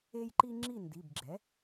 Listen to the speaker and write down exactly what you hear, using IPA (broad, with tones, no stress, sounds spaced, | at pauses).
e˦ j ǃ i˦ ŋ͡ǁ i˥˩ n d i˩˧˩ b ɡ͡ǁ ɛ˩˥